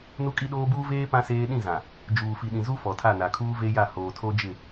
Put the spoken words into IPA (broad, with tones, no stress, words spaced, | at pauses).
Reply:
nu˦kʼi˦ɗoː˦ buː˦veː˦ pã˦seː˦ ɗĩ˦˨zã˨ | d͡ʒuː˨fi˨ɗĩ˨zu˦ fɔ˨tʰa˦˨na˨ kʰuː˦ve˦ja˦˨ hoː˨tʰo˦d͡ʒɪ˦˨